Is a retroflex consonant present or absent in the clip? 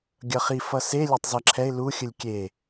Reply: absent